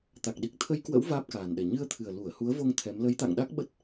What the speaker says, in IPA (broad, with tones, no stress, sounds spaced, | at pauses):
t̪ a˨˩ k̚ ɗ i˨˩ k̚ t̪ʰ ə˧ j k w ə̰˧˥ w v aː˦˥ p̚ k aː˨˩ n ɗ ɛ˨˩ ɲ ɨ˧ ə̯ t̪ʰ ɨ˨˩ ə̯ l u˧˩ ə̯ h u˨˦ ə̯ v o˧ ŋ t̪ʰ ɛ˨˦ m l ə˨˦ j t̪ a̰˧˨ ŋ ɗ a˦˥ k̚ ɓ ə˦˥ t̚